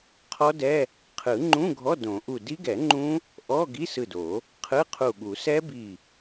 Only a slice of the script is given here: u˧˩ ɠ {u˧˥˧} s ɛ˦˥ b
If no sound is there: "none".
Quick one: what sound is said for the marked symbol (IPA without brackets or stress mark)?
u˨˩˦